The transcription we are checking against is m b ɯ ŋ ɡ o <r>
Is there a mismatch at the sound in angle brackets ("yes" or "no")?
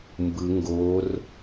no